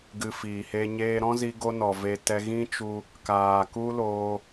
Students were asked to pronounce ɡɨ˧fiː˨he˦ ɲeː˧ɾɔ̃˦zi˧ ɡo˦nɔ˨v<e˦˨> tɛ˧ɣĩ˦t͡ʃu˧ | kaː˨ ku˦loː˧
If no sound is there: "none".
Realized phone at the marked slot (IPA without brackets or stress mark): e˧